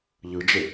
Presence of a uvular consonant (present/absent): absent